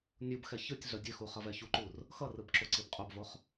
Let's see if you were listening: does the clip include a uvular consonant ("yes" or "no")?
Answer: yes